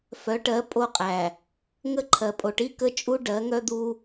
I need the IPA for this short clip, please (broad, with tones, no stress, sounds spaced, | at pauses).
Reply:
f œ˨˦ ʈ ɜ˨˦ pʼ o˦ qʼ æ˨ | ŋ ə˦ ǃʰ ɜ˨ pʼ o˨ ʈ i˦ k ə˦ t͡ʃʼ u˦ ɖ ɜ˨˦ ŋ œ˦ d̪ u˦